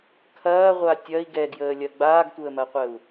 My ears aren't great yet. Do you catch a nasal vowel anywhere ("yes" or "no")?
no